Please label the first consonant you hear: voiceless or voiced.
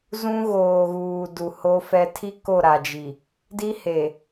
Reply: voiced